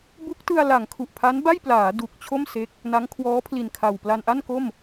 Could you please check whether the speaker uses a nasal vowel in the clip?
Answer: no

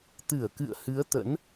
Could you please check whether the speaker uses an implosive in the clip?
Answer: no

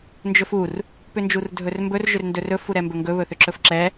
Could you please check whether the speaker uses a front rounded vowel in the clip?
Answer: yes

